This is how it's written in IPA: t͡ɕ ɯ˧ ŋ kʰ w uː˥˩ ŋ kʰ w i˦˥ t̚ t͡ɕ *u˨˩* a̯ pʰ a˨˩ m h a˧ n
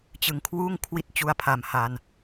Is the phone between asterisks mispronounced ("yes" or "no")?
yes